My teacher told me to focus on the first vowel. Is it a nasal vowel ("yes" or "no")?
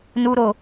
no